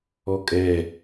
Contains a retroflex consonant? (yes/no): no